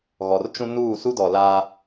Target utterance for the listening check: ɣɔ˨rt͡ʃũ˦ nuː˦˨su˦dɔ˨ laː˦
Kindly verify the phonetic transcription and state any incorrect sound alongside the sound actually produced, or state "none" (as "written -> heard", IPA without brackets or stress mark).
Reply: none